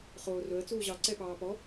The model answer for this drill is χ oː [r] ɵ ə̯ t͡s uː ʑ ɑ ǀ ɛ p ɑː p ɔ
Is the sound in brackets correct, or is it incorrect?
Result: correct